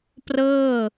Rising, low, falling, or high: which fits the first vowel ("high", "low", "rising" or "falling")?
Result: falling